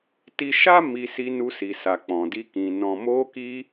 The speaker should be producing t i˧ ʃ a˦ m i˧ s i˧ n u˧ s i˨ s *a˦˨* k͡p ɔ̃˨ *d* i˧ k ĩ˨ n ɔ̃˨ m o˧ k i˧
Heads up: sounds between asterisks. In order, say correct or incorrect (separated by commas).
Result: incorrect, correct